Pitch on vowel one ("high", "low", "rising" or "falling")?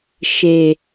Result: low